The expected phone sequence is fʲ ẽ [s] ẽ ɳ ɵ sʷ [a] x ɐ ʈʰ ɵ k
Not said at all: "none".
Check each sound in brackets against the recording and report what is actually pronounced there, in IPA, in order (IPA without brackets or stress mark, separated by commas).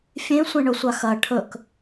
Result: sʷ, a